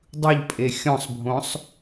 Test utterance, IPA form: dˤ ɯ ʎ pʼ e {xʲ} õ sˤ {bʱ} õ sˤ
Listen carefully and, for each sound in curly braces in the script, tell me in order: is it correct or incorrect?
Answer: correct, correct

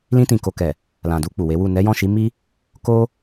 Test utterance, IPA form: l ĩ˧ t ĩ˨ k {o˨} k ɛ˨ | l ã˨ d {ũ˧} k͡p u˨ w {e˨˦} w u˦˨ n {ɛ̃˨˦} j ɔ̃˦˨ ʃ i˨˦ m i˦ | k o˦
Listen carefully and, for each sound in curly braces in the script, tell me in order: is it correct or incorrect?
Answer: correct, incorrect: u˧, correct, incorrect: ɛ˨˦

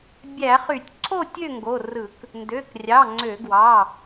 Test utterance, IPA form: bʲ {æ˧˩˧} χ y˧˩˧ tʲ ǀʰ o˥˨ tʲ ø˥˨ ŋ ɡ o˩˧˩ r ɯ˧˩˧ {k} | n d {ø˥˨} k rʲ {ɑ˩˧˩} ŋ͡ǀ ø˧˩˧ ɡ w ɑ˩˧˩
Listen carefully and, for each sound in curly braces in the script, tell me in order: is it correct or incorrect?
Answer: correct, correct, incorrect: ø˩˧˩, correct

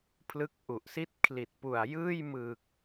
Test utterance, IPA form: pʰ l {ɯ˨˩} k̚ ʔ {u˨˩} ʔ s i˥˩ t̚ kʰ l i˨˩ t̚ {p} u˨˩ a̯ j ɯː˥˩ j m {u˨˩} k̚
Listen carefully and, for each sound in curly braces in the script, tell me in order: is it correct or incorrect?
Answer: incorrect: ɯ˦˥, correct, correct, incorrect: ɯ˨˩

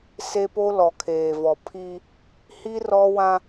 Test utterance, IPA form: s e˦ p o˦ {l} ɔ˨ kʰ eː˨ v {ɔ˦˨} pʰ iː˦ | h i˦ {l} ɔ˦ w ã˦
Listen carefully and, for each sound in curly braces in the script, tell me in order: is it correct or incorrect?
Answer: correct, incorrect: ɔ˨, incorrect: r

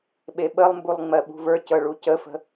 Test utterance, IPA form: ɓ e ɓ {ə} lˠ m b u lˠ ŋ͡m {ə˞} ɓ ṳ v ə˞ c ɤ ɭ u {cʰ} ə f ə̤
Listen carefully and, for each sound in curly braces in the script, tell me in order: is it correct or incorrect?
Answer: correct, incorrect: ɜ, incorrect: c

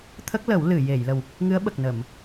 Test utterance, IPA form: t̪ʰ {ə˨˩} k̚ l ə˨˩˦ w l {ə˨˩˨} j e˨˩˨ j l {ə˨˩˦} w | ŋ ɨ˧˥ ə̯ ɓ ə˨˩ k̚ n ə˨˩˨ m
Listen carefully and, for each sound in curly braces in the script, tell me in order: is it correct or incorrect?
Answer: incorrect: ə˦˥, incorrect: ɨ˨˩˨, incorrect: ə˨˩

